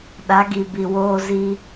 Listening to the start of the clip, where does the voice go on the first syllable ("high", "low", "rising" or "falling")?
rising